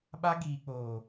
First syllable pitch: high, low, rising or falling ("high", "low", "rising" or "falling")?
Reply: high